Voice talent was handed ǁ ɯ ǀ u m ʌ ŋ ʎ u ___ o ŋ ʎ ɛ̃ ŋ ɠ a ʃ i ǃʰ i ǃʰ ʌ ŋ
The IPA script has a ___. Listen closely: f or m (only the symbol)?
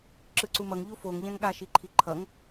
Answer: f